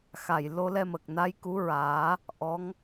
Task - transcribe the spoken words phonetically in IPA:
xa˨˩jlo˧lɛ˧mə˨˩k̚ na˧˥jku˧˥ɹaː˨˩˦ | ʔɔ˧˥ŋ

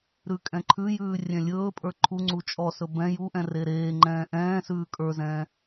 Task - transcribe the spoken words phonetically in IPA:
ɾʉkʼɛ̃ǃʰʉjʉː rʲɛ̃lʲɵːpʼə˞ ǃʰuŋ͡ǀu t͡ʃʼɔsɵ bɛ̃ juʔɛ̃ reɾeːŋ͡ǃɛ̃ː ʔɛ̃ːsʉː kʼə˞zɛ̃ː

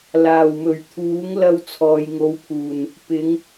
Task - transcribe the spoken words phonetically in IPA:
laː˨˩wmɵ˨˩ɥt̪ʰuː˨˥ŋ lɐ˧wt͡sʰɔː˨jŋo˨˧wpʰuː˨˩n | pɪ˨˧ŋ

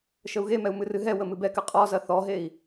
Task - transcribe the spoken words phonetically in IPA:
ʃəu̯ɣemɛu̯ mɨrɨɦɛwə mɨbɛkɨ qʼɔzɐ θɔɦei̯

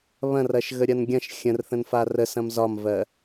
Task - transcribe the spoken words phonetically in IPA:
βɐ̃rɐʃ ɣəɾʲɐnɡʲɐ̃ʃ xʲə̃rθə̃n farəsɐ̃m zɒmvɜ

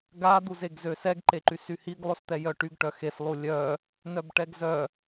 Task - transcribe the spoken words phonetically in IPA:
ɡa d̪uzeɡzøsɛɡ ǃeǃysyhiɡ lˠost̪ɛjœʈyɡ ʈœxes lˠulʲœ | nœbʈɛɡzœ

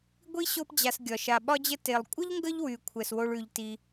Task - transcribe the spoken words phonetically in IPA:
ɡʷi˥ɕo˦pd͡ʑa˨s ɡʲɒ˩ʃa˩ɓɒ˦d͡ʑə˦ te˩lˠkʷʼə˥ʎŋɡə˦ʎwy˩ kʷʰɛ˩swo˨ɭ ʉ˩ʎti˨

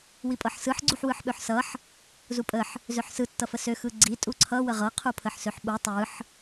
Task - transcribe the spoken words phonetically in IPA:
wipʼɤħsɯħ ɡ͡ǀuħwɯħɓøħsʌħ | zupʼəħ | zøħsɯ tːʌfəsø xɯɡ͡ǀi tʼuǀʰʌ wəʁɤ qʰupʰəħsøħɓu tˤɯħ

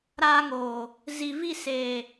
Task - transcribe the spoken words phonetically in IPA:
ɾaː˧ŋoː˨ | zi˨ vi˦˨seː˨

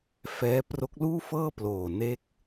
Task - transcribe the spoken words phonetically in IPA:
fɛː˦˥ pro˦˥k̚luː˥˩fɤː˥˩ ploː˨˩ne˦˥k̚

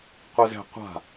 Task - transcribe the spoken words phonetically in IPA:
qʷɤzɛ̤ qʷa̤

